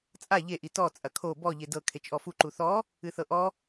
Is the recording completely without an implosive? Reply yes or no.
yes